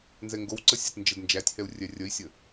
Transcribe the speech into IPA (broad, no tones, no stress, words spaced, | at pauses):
nzɛŋɡowǀə sʲɛtnd͡ʒədnd͡ʒætʲhɛu̯ rʲɛrʲəi̯sʲə